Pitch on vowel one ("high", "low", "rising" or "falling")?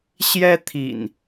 high